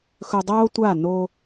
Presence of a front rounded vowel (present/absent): absent